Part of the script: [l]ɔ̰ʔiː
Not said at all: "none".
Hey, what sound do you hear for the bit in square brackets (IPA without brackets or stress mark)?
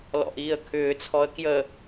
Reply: l